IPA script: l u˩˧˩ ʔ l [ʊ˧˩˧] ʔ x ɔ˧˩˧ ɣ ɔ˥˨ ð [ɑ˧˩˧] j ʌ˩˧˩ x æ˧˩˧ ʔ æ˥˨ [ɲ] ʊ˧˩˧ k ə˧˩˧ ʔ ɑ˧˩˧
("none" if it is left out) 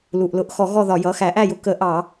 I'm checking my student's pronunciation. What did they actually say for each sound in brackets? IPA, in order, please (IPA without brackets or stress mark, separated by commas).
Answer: ʊ˧˩˧, ɒ˧˩˧, j